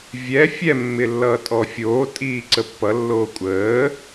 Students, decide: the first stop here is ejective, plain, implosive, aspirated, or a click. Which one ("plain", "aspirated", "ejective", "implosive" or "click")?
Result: ejective